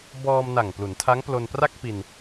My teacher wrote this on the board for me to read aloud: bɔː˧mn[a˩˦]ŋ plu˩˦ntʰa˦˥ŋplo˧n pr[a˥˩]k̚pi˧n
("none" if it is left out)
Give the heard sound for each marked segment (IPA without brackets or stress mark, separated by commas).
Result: a˨˩, a˥˩